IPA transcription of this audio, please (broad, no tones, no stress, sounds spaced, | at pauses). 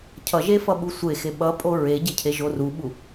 cʰ ʌ ʒ e f ʌ ɓ u sʷ e x e ɓ ʌ pʼ o ɹ e ɟ e cʰ e ʒ o r u ɓ u